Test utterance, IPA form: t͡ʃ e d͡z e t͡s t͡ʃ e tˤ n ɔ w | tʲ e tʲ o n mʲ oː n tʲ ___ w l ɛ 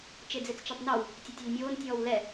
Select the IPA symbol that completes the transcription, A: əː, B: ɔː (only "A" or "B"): B